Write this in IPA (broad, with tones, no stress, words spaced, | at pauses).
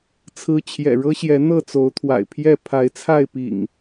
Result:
t͡sʰɹ̩˦ t͡ɕʰjɛ̰˨˩ɻɤ˦ɕjɛ˨˦ n̪ɤ˥˨t͡so˨˦ʊ̯t̪ʰwa̰˨˩ɪ̯pʰjɛ˥˨ pʰa˨˦ɪ̯t͡sʰa˥˨ɪ̯pḭ˨˩ŋ